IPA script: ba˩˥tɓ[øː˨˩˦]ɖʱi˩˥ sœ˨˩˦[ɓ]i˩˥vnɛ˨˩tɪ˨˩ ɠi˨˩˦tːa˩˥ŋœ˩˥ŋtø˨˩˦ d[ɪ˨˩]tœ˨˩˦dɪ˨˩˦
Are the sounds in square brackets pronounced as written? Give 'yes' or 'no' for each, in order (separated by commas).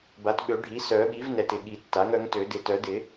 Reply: no, yes, yes